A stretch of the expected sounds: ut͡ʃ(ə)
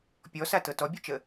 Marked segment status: correct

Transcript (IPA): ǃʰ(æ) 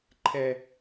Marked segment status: incorrect: ɛ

